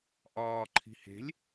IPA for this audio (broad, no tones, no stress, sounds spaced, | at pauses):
ʔ ɒː ǃʰ i̤ h e̤ lʲ